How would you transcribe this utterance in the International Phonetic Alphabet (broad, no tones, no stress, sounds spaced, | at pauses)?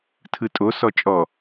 tʰ ɯ tʼ o s ɔ t͡ʃʼ ɔ